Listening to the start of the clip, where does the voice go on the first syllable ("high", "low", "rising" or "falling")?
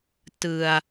low